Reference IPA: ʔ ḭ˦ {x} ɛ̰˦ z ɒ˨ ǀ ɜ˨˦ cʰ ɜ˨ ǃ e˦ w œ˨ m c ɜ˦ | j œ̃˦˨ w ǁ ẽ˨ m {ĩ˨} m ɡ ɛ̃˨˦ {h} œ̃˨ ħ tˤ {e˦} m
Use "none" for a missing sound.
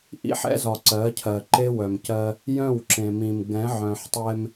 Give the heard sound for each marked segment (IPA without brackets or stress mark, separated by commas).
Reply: ħ, ĩ˨, ʕ, ɛ˦